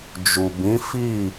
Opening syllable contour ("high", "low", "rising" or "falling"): low